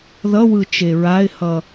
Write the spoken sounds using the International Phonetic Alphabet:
ðʌwɯ t͡ʃeɹaɪ̯hʌ

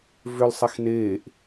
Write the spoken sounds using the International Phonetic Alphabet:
vʏl sˤexneːʔ

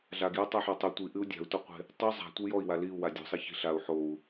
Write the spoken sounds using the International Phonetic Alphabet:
ɮaɡju tˤaħotˤu tʷiʔɨu̯ dʲa̤u̯tɔqʷe̤ | tˤu zˤa̤ tʷɨjɔi̯wa liu̯wa dʲṳsˤe çi̤ɬau̯ ħou̯

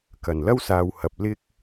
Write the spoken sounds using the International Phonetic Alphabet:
kɐ˨˩nlɐ˥wsaː˨whɐ˨p̚ lɪ˥k̚

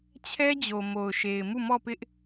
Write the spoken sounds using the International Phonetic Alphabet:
t͡ɕʰɛ˦d͡ʑo˨mo˨ʊ̯ ʃe˨ɪ̯mu˦˨mɔ˦˨pɪ˦ʔ

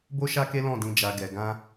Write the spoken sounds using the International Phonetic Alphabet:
bo˦ʃa˦ ke˦lɔ̃˦˨dĩ˧ d͡ʒa˧ɡɛ˧ ɡã˦

